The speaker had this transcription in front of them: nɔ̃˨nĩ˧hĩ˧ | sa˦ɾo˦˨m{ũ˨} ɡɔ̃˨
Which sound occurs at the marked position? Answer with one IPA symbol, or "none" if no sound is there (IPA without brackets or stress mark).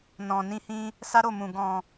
ũ˨